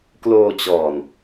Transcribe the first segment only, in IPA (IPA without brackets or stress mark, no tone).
k